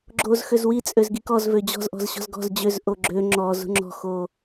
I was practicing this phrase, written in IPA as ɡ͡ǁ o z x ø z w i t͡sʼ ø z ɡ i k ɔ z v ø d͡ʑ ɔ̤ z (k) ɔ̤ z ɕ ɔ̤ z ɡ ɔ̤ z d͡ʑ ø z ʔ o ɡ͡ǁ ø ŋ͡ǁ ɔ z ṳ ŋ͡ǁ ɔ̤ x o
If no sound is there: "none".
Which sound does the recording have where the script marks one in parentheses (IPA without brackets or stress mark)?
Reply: ʔ